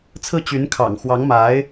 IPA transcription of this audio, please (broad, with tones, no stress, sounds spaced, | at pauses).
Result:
t͡sʰ ɹ̩˥˩ t͡ɕ y˧˥ n kʰ ɑ̰˨˩ ŋ x w ɑ˧˥ ŋ m a˧˥ ɪ̯